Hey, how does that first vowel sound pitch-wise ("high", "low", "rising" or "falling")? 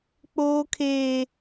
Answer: high